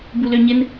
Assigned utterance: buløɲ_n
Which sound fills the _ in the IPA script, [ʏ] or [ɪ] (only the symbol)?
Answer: ɪ